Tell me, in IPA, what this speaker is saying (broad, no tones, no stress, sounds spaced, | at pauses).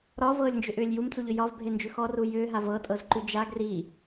ɾ ɒ v ɤː lʲ n d͡ʒ ʏ ʔ ʏː lʲ j u m t͡s u ʎ ʏ j ɒ v bʱ e n d͡ʒ ʉ x ɔ r u j ʏː ɦ a v ɤ tʼ ɤ z ǃ ʉ d͡ʒ a ɡ r i